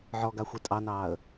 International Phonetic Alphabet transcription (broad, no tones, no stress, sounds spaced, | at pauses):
ʕ ɔ ɡ a xʷ e tʼ ɑ n ɑː ə̯